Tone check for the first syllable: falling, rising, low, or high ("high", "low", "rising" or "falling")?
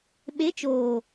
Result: rising